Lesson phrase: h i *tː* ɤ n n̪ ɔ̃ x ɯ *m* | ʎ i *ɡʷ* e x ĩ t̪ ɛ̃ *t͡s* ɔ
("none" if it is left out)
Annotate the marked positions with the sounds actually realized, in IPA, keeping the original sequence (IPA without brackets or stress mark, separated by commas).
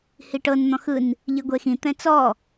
ʈ, n, ɡʷ, t͡s